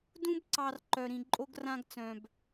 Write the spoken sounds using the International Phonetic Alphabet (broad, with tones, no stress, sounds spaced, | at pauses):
d ũ˦ b ǀ ɑ˨ r ǃ œ˨ ɾ ĩ˨ ǃʼ o˦ ɡ r ã˦ ɡ t͡s œ̃˨ b